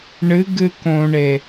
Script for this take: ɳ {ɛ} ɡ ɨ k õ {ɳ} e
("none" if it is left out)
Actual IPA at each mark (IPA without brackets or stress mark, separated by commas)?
ɨ, ɳ